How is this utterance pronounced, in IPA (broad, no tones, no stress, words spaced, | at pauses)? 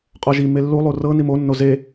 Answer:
qʼɔʒi melːu lˠurɤ nimo nːoze